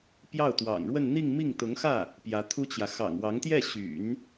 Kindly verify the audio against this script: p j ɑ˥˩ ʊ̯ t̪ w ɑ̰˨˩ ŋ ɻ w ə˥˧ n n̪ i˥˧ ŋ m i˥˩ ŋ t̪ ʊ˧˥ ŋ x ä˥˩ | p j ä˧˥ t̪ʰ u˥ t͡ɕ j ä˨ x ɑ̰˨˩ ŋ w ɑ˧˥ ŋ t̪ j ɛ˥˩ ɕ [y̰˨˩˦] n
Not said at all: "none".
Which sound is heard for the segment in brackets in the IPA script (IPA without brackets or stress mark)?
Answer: y̰˨˩˦